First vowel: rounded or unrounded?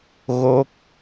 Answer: rounded